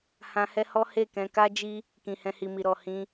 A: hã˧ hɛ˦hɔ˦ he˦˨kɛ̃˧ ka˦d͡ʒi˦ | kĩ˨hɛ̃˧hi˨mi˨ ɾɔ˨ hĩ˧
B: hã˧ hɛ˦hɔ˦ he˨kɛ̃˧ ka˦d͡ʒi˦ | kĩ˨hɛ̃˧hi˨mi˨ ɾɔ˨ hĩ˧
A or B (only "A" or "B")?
A